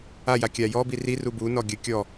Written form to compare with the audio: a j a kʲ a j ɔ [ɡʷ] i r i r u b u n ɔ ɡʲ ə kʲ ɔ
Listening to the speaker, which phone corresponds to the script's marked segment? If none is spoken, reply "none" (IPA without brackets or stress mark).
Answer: b